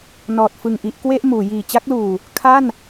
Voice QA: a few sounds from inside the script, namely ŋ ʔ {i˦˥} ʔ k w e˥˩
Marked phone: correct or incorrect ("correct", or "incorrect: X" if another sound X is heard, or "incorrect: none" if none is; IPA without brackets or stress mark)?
correct